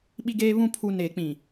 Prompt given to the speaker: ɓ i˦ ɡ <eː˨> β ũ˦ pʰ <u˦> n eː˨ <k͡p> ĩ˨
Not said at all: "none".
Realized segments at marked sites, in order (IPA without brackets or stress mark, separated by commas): eː˦, u˦, k͡p